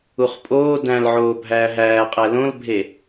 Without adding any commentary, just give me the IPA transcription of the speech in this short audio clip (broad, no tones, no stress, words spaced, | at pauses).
uχpʼoː dæ̃lʕoː bʱæːɦæːqʼæ lõlbʱe